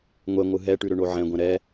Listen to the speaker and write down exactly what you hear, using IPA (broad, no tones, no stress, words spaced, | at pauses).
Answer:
ŋʷɛŋʷɯ ɦɛʈʉɾʏɳo ʕɛ̃ɡʷɛ̃ ɾɛ